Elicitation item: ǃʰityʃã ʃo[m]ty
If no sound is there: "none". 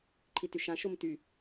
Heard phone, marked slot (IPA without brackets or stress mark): m